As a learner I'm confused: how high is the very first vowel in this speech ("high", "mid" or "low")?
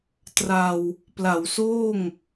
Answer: low